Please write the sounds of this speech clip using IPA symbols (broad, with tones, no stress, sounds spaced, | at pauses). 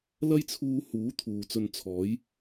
l ɐ˥ j t͡sʰ uː˧ h uː˨˥ t̪ʰ uː˨ t͡s ɵ˧ n t͡sʰ ɔː˨˥ j